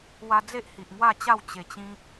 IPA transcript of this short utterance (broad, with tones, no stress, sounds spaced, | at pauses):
w a˧ d͡z e˦ ʔ h i˨ ʔ ŋ w a˥˧ t͡ɕ a˥˧ w t͡ɕ e˨˩ t͡ɕ ĩ˧